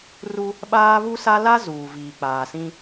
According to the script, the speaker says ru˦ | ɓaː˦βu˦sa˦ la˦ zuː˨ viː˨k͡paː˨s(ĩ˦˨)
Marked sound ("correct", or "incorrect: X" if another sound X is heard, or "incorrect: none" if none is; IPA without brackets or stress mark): incorrect: ĩ˦